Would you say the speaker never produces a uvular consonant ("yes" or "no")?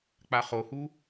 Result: no